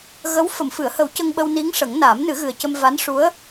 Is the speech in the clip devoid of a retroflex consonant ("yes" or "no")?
no